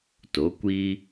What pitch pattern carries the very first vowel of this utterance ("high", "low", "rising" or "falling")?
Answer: rising